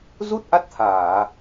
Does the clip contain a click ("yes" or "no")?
no